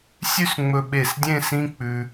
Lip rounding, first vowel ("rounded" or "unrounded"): rounded